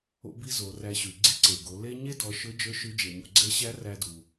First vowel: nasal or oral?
oral